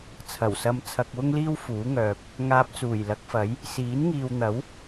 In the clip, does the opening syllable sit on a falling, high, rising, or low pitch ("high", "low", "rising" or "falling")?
low